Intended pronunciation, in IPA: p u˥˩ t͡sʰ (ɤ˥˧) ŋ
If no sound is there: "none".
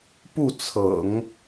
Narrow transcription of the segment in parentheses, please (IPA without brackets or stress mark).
ɤ̰˨˩˦